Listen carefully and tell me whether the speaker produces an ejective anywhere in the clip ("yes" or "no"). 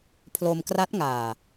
no